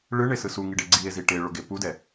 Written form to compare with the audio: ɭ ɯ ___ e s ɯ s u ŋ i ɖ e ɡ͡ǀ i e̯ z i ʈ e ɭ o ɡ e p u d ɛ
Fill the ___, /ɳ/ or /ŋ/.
ɳ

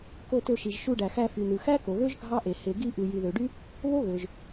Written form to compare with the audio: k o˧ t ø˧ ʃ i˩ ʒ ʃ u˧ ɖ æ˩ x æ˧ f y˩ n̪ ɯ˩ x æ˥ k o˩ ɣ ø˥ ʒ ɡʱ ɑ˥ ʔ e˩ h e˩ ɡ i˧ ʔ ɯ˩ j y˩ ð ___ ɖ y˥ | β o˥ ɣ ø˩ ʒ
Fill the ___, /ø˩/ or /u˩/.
ø˩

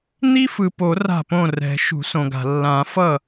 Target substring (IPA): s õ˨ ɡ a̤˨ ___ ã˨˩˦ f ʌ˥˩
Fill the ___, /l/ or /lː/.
lː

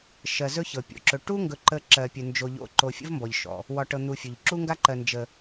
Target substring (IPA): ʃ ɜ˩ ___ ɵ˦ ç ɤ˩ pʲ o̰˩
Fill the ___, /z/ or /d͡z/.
z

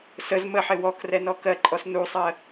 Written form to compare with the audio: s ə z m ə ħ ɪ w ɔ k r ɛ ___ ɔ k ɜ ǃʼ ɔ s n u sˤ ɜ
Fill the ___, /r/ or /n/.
n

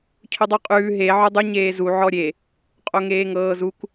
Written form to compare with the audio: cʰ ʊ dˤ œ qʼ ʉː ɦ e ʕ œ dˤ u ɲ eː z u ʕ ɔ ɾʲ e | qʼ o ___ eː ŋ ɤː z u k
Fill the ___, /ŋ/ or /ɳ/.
ŋ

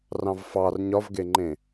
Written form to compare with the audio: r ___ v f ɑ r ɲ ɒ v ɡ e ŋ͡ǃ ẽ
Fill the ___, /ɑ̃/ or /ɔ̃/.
ɑ̃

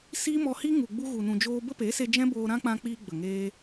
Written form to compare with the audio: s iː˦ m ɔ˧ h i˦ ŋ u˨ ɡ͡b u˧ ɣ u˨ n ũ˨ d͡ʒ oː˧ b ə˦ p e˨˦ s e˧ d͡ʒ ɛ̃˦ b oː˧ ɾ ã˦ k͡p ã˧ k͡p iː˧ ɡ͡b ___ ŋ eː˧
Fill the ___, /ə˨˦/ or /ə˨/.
ə˨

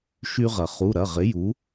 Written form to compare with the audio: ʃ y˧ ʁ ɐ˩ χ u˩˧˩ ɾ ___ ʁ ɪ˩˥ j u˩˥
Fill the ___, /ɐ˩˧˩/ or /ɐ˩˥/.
ɐ˩˧˩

